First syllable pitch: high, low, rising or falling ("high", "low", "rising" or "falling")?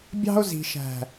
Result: high